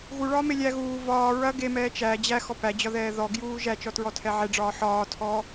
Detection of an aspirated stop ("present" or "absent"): present